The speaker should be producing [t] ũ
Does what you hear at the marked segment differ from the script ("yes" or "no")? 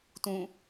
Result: no